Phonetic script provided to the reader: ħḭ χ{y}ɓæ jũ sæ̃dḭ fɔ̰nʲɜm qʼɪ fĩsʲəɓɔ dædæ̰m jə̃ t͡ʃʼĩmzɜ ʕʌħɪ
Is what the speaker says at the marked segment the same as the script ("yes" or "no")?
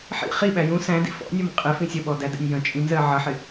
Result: no